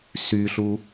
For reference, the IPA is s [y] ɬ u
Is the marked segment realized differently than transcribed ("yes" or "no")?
no